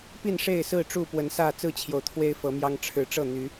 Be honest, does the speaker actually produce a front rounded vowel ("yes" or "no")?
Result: yes